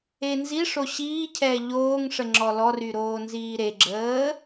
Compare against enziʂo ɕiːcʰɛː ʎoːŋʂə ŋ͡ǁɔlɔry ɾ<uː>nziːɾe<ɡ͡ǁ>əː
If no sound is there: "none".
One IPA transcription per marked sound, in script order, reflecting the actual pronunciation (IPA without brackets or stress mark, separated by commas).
oː, ɡ͡ǁ